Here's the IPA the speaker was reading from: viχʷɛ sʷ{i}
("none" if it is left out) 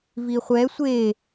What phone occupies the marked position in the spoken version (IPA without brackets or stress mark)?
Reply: e